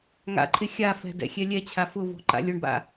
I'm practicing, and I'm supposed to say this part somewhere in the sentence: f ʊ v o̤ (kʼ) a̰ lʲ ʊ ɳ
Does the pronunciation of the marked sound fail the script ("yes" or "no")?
yes